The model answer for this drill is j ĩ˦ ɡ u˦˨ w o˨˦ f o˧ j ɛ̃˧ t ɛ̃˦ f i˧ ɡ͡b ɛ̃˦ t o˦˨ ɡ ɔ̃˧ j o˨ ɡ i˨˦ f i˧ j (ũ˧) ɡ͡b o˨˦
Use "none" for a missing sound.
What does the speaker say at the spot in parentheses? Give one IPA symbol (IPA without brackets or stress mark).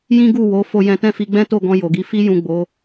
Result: ũ˨